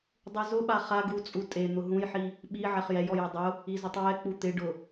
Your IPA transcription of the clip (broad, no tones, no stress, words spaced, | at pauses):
dˤuzʊɓa χaɡ ut͡sʼu tʼe n̪ʊɦũjħi | ɓi ʕɛχjɛjɔjɛ dˤʊ | izʊtˤwɛ k͡put̪ɪɖʊ